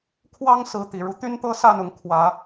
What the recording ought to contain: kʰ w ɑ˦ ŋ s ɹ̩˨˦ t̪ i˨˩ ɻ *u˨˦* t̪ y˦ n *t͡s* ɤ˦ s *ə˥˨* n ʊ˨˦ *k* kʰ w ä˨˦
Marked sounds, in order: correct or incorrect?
correct, incorrect: t̪, incorrect: a˥˨, incorrect: ŋ

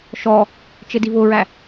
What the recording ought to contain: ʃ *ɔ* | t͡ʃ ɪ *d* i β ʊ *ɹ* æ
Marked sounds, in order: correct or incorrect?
correct, correct, correct

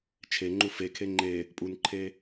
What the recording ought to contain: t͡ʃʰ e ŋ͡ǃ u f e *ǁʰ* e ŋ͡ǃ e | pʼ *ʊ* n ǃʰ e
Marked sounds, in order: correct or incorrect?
incorrect: kʰ, incorrect: u

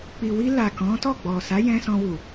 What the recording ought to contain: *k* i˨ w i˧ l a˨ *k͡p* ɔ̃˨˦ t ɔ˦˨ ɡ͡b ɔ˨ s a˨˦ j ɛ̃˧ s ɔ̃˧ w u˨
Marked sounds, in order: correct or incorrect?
incorrect: k͡p, incorrect: k

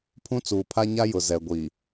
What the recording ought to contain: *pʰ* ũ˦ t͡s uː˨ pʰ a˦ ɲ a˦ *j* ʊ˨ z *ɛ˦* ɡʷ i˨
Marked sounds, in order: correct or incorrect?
correct, correct, incorrect: ɛ˨

